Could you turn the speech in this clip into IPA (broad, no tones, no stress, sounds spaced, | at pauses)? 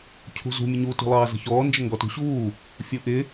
cʰ ṳ z ṳ mʲ ə ɲ u t ṳ lˠ ɑː z ə̤ ç ɔː n d͡ʒ ə ŋ ɡ ɔ t ṳ ɕ uː | fʲ u ʔ ɪ